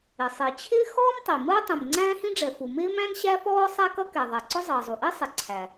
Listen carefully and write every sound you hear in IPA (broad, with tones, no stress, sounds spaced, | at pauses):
ɪ˩ sˤ i˩ t͡ɕʰ ɪː˥ x ɔː˥ m tˤ i˩ m əː˥ tˤ ĩ˩ m ŋ͡ǀ æ̃ː˥ h ĩ˥ ɖ͡ʐ ɛ˩ f u˩ m ɪː˥ m æ̃˥ n ɕ æ˥ f ɔː˥ sˤ æ˥ k ʌ˥ k ɛ˩ ðˤ ɛ˩ ǀ ʊ˥ zˤ əː˩ zˤ u˩ ʔ i˥ sˤ ɪ˩ ǀʰ æ˩